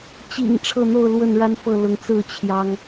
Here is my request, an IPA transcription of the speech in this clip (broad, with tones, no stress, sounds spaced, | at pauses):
t͡ɕ ḭ˨˩ ŋ ʈ͡ʂʰ ɤ˥˨ n̪ o˥˨ ʊ̯ l w ə˥˨ n ɻ a˦ n f ɤ˥˨ l ʊ˨˦ ŋ t͡s ɹ̩˥˨ t͡ɕʰ j ɑ˦ ŋ